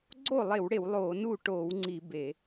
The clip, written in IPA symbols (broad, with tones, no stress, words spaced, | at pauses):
ɡ͡ǀoː˥˩lˠe˧˩˧wɽe˧˩˧w lˠoː˧˩˧nu˥˩ ʈoː˧˩˧wŋ͡ǀi˧˩˧ be˧˩˧